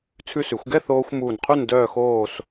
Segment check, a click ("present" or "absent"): absent